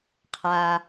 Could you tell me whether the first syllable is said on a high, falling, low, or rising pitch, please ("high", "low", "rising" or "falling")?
low